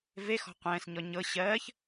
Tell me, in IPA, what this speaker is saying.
v e x ɔ̤ qʷ ɛ̃ː s ɲ ɔ ɲ ɤ ɕ ɜː ç

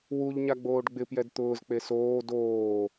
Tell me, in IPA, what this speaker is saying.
w u ʎ ɲ a ɡ͡b oː ɖ ɡ͡b ɪ p j ɛ d t̪ ʊː z k͡p e s oː d oː

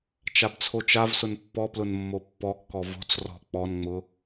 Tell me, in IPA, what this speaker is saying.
t͡ʃ a b t͡sʰ o t͡ʃ a v s ʊ n pː ɔ p l ʊ n mː o pː ɔ kː ɔ v o̤ t͡s r ɔ̤ k͡p ɔ n ŋ͡m ʊ

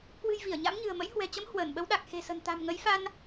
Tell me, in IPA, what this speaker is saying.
k w ɨ̤˨˩ j v i˧˩ ə̯ ɲ a̰˧˥ m ɲ ɨ̤˨˩ ə̯ m ə̰˧˥ j h w ɛ̤˨˩ t͡ɕ ə˨˦ m h w əː˧˩ n ɓ ə˨˦ w ɗ a˨˩ k̚ x e̤˨˩ s ə̤˨˩ n t̪ a̤˨˩ m ŋ ə˨˦ j f a˧ n

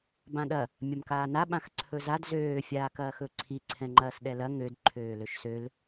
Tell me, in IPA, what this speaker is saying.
b ã ɗ ɐ | mʲ ɐ m k aː n a ɓ ã x ǀʰ ɵ z a d z øː fʲ aː k ɐː x ɵ ǀʰ i ǀʰ ɛ̃ ŋ͡ǃ ɐː s ɗ ɛ l ɐ ŋ ø d ǃʰ øː l ø ʃ s ø l

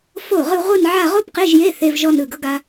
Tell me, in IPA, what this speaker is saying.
f o˥˩ ʁ ɯ˥˧ ʁʷ ɯ˥˧ n ʕ a˥˧ ʁ o˥ p q e˧˥˧ ʒ j e˧˥˧ θ e˧˥˧ v ʒ ɔ˥˧ n ɯ˥˩ ɡ ɤ˥ ɡ a˥

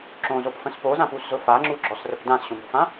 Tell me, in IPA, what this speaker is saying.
ǁ õ z o p f ə̃ s p o z ã p u s z ʊ f a ŋ͡ǁ u ɡ͡ǁ ɔ s r ə p d ã s ɕ õ m o̤ f ã

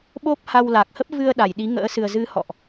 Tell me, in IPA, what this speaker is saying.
ɓ o˦˥ p̚ h a˧ w l a˨˩ k̚ h ə˦˥ p̚ v ɨ˧ ə̯ ɗ a˧˩ j ɗ i˨˦ ŋ ə̰ː˧˥ s ɨ˨˩ ə̯ z ɨ˨˦ h ɔ̰˧˨ ʔ

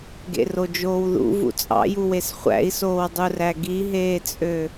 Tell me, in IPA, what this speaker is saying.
ɡ ḛ r o d͡ʒ oː w ð ṵ v ṵ t͡sʼ ɑ̰ j u w e s χʷ æ̰ i̯ s oː w dˤ u r æ ɡ i ɦ eː t͡sʼ ø

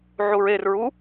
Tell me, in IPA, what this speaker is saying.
ʕ u ɹ e r ɹ u

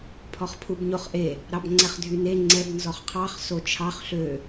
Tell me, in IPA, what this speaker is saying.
pʰ ɔ χ pʰ u b ɲ o χ ʔ e | ɾ ɑ b ŋ͡ǀ ɛ χ dʱ y n e ŋ͡ǀ ɛ b n z ɔ χ qʰ ɑ χ s o t͡ʃʰ ɑ χ ɬ ø

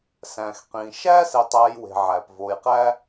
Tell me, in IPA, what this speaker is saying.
s æ̃ː˩ x q ĩː˩ ʃ æː˦ s e˨ tˤ æː˨ j w e̤˩ ʕ æː˩ p v oː˨ j q æ˦

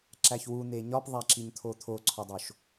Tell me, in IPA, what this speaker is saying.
ǁ æ ç w u n̪ e ɲ ɒ p ðˤ æ ǁ i ɲ t̪ʰ o t̪ʰ o ǀʰ ɒ dˤ o ʃ

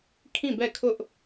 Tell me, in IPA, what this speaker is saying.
kʰ ĩ˦˨ b ɛ˦˨ kʰ ʊ˦ ʔ

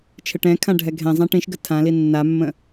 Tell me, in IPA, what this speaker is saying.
t͡ʃʰ ɘ ʈ ɛ̃ kʰ ã ɖʱ ɛ ɡʱ ɛ̃ zˤ ã ʈ ĩ ʃ ɡ ə tʰ ã l i nː a mː ə̃

